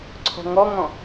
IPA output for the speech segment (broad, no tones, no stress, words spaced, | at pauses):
ǀʰɔ̤ŋɔŋɔ̃